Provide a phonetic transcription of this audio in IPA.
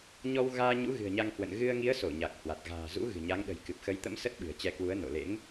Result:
ɲ ɔ˧ w ɣ aː˧ ɲ ṵ˧˥ ɣ ɨ̤˨˩ ə̯ ɲ a˧ ŋ h w ə̰˧˨ n ɣ ɨ˧ ə̯ ŋ i˨˦ ə̯ s o˧˩ ɲ a˨˩ k̚ h w a˨˩ t̚ ɣ a̤ː˨˩ z ṵ˧˥ ɣ ɨ̤˨˩ ɲ a˨˦ ŋ ɗ ə̤˨˩ j k ɨ˨˩ p̚ x ə˨˦ j t̪ ə̰˧˥ m s ə˦˥ t̚ ɓ ɨ̤˨˩ ə̯ t͡ɕ ɛ˧ k w u˨˦ ə̯ n o̰˧˨ l ḛ˧˥ ŋ

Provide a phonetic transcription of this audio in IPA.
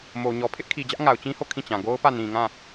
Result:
m o˨ ɲ ɔ˨ pʰ ɪ˦ ʔ kʰ i˨ d͡ʑ ä˦ ʔ ŋ a˨ ʊ̯ t͡ɕ ĩ˦ h o˦˨ kʰ ĩ˦˨ t͡ɕ ã˨ ɡ o˦ ʊ̯ p ä˦˨ n ĩ˨ ŋ ã˦˨

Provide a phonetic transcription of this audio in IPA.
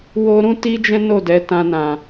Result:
w o˦ ɾ ũ˦ t i˦ d͡ʒ ɛ̃˦ n o˦˨ d ɛ˨˦ t ã˧ n ã˨

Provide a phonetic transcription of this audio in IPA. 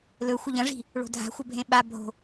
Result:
l ɵ xʷ ɐ ʎ ɐ̃ ʐ i̤ | ɭ o̤ dʱ a̤ xʷ ɐ bʱ ẽ ɓ a bʱ o̤

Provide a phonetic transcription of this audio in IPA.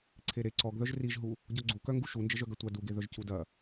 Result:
ǀʰ e ɾ e ǀ ɔ ɡ ð œ ʒ r i ʒ ɦ u | ɟ ɔ ɡ͡ǀ u k œ ŋ ɡ u ʃ u n d͡ʒ ə ʒ œ ɡ ɐ tʷ a d u ɡ e ð œ ʒ c u d ɐ

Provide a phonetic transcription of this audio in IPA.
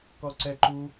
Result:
k ɔ ǀ ɛ ǃ u

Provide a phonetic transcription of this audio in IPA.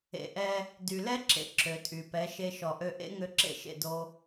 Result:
ḛ˧ ʔ ɛ˦ | d y˨ l ɛ˦ ǁ ḛ˨ ǁ ø˨ tʼ y˨ p ɛ˨˦ ʃ e˧ ʃ ɔ˨ ʔ ø˧ ʔ ḛ˦ ŋ ø˧ ǁ ḛ˦ ʃ ḛ˦˨ d o˧

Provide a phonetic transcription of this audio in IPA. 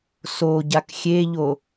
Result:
s o ɟ a k xʲ e ʎ o

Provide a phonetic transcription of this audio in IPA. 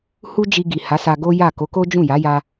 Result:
h u˦ d͡ʒ i˧ ɡ i˨ h a˨˦ s a˧ ɡ o˦ j a˦˨ k o˨˦ k o˦ d͡ʒ ũ˦˨ j a˨˦ j a˦

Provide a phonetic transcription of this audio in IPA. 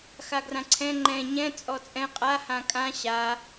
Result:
x a ɡ r ã ǀʰ ɛ̃ ŋ͡ǃ ɛ̃ ɲ ɛ̃ t͡sʼ ɔ t͡sʼ ɛ̃ qʼ a h ã kʼ ã ɕ a

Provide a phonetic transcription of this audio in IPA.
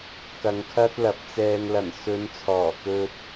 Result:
k ɐ˨˧ ŋ kʰ ɐ˥ t̚ l ɐ˨˥ p̚ t͡s ɛː˧ ŋ l ɐ˨˩ n s ɵ˨˧ n t͡sʰ ɔː˨˩ k ɵ˧ t̚

